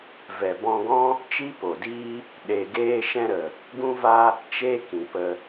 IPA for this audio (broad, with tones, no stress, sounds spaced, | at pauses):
v ɛ˨ b ɔ̃˧ ɡ ɔ̃˦ | t͡ʃ i˦ p o˨ d iː˦ | ɗ e˨ ɡ eː˧ ʃ ɛ̃˧ ɾ ə˨ | ɡ ũ˦ v a˦ | t͡ʃ e˦ k ĩ˨ p ə˧